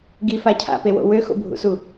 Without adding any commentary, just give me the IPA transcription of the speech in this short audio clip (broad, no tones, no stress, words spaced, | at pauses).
ɡifa cʰa̰pewo̰ wøxo̰bʱṵsu